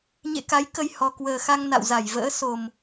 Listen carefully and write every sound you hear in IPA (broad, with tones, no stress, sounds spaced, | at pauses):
ɲ ḛ˧˨ k a˨˦ j k ə˧ j h ɔ˨˩ k w əː˨˩ x a˧ ŋ n a̰˧˨ w z a˧˩ j v ə̰ː˧˥ s o˨˩ m